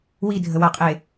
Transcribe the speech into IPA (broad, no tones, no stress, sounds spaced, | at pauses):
w i dʱ ə w a qʼ e